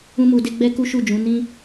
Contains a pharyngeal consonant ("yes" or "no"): no